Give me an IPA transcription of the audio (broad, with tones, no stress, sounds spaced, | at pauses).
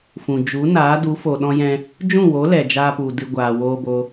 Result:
f ũ˨ d͡ʒ u˨˦ n aː˨˦ d u˨˦ f o˨ ɗ ɔ̃˧ j ɛ̃˧ | d͡ʒ ũ˦˨ w o˨˦ l ɛ˨ d͡ʒ aː˧ p u˨ d ɨ˧ ɡʷ aː˨ w oː˧ b o˧